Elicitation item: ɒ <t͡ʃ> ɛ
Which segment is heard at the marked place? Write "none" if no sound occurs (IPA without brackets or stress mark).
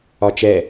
t͡ʃ